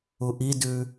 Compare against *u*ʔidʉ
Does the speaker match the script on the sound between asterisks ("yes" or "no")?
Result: yes